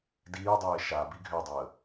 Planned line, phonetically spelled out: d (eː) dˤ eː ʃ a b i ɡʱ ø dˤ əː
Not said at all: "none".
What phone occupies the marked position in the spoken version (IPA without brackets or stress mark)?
iː